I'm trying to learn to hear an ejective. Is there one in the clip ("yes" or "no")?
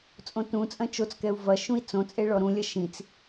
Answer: yes